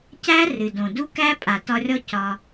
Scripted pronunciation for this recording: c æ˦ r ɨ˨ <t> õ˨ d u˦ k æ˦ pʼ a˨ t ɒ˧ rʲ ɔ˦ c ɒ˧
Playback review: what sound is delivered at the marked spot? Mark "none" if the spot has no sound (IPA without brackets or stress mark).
d